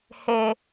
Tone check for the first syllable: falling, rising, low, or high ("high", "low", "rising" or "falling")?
low